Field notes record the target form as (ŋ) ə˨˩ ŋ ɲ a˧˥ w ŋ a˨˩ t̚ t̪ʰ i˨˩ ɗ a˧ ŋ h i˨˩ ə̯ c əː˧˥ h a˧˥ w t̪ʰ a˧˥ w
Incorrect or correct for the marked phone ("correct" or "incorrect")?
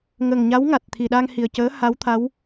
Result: correct